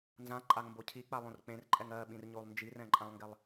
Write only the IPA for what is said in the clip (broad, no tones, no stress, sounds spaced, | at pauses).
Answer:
n z ã ǃʼ a ŋ m b o cʰ i k͡p a lˠ õ r k͡p ẽ r ǃʼ ɛ ŋ ɜ ɓ ĩ r ɲ o lˠ n d͡ʒ i r ɛ̃ ǃʼ ã lˠ ŋ ɡ ɛ lˠ